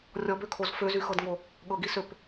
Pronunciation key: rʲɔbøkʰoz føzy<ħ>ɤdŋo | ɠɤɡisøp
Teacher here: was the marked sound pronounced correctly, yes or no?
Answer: no